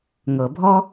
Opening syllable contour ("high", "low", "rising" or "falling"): low